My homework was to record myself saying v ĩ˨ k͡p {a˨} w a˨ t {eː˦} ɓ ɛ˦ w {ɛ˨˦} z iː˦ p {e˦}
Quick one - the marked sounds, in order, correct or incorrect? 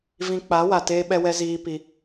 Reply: incorrect: a˨˦, correct, incorrect: ɛ˦, incorrect: i˦

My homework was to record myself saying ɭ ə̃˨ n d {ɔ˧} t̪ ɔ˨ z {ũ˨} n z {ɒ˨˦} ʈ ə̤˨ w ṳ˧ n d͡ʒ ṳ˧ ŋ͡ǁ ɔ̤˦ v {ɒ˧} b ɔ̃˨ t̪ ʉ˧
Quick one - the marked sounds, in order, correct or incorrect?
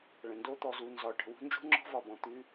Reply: incorrect: o˧, incorrect: u˨, incorrect: ɒ˨, incorrect: ɒ˨

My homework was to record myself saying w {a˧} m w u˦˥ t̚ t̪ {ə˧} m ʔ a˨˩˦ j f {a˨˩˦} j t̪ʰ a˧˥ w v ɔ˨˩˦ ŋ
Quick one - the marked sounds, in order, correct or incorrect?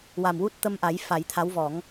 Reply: incorrect: a˨˩, correct, correct

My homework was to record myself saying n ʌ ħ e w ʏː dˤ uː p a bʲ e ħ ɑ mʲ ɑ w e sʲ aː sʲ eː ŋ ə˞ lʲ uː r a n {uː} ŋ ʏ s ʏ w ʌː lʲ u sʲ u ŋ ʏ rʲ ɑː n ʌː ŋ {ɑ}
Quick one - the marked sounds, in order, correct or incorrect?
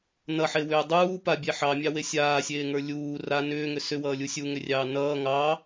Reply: incorrect: ʏː, correct

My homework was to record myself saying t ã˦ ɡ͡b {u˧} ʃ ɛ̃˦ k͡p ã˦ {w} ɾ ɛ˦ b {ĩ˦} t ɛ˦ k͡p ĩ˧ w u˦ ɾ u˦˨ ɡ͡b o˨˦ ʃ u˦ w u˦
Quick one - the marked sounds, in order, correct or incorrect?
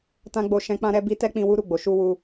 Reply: incorrect: o˧, incorrect: none, incorrect: i˦

